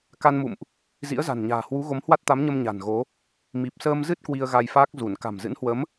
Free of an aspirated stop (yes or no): yes